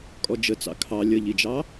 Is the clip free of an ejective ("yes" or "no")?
no